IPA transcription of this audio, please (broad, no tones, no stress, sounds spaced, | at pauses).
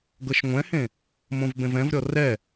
ɡ ɤ ʃ ŋʷ ɛ̃ h ẽ | m õ v b ẽ v ɛ̃ v ɾʲ ɔ r ɛ